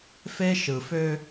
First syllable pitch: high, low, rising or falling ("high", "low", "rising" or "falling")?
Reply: high